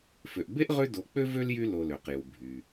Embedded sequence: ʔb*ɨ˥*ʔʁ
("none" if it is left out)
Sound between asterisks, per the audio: e˥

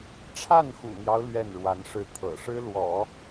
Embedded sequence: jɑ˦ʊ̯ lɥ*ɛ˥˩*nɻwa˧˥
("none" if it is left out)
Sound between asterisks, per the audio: ɛ˥˩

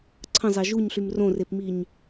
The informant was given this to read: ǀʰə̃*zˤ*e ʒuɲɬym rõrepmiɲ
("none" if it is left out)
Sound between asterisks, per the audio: zˤ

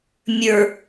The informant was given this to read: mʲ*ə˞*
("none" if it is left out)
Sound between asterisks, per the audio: ə˞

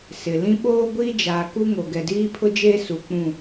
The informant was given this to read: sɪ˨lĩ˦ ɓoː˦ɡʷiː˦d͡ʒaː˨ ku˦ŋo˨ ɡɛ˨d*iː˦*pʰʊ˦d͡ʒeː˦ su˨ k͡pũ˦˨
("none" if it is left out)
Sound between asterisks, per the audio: iː˦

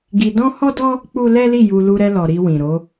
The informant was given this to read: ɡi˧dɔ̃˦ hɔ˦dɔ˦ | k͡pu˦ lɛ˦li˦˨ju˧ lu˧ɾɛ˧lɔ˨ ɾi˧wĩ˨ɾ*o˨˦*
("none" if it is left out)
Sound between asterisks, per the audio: o˨˦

